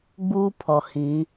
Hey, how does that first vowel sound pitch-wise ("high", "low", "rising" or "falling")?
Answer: high